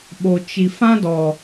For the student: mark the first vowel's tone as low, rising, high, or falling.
low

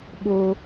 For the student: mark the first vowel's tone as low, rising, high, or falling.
high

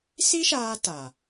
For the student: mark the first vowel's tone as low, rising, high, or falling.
high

